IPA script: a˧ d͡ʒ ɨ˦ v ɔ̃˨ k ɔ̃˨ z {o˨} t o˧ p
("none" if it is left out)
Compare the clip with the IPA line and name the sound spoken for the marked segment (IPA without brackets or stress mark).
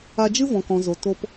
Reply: o˨